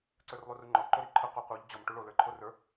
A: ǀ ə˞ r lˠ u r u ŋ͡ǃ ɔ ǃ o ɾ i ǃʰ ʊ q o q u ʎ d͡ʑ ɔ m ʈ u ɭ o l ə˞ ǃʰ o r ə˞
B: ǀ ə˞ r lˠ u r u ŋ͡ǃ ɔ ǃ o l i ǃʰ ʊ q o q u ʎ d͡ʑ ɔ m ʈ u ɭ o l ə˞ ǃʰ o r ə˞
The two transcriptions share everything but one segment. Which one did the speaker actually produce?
A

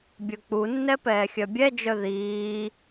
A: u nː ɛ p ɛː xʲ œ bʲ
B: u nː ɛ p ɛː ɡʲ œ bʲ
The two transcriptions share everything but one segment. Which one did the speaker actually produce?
A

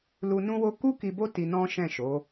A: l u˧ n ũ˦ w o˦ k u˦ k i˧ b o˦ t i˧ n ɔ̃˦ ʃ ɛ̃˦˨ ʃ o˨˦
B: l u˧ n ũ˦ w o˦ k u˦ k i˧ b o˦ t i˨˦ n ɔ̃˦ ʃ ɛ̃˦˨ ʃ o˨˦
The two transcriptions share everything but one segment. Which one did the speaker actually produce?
A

